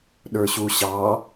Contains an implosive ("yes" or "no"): yes